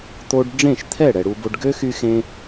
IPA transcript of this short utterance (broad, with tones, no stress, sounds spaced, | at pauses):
t̪ o˧ ɖ ɖ͡ʐ ẽ˦˨ ʃ t̪ʰ ɛ˦˨ ɽ ɛ˨ ɽ u˧ b o˧ ɖ ɡ ø˦ x y˧ x ẽ˧